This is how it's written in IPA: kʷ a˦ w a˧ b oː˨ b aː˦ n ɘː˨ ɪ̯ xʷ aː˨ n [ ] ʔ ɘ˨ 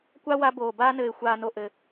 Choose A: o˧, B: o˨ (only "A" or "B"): B